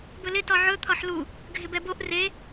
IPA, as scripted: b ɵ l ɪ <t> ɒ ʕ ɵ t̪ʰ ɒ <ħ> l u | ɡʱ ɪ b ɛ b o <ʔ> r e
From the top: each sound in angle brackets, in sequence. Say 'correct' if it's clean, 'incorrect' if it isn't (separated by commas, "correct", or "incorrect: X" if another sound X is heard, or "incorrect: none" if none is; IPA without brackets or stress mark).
correct, correct, correct